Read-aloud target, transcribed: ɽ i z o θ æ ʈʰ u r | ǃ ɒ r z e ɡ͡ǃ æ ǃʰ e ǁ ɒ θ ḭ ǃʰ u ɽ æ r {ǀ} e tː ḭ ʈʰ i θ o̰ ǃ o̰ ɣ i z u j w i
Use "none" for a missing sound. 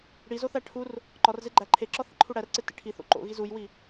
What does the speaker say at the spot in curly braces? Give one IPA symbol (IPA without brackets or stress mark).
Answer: ǀ